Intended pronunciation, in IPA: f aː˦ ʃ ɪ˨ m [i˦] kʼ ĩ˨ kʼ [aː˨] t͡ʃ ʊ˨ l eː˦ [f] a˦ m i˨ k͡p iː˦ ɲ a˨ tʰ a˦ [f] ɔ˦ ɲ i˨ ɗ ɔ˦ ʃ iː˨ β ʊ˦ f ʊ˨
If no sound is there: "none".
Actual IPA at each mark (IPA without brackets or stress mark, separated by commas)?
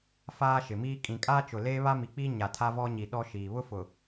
iː˦, aː˦, β, v